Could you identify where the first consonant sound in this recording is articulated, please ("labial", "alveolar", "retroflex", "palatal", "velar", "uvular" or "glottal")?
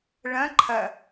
retroflex